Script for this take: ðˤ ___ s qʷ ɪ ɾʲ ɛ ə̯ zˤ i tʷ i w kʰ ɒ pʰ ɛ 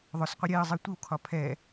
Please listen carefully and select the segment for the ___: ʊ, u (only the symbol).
ʊ